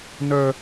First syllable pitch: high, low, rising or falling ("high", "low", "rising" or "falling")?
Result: high